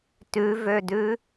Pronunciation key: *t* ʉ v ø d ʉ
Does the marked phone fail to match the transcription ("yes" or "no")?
no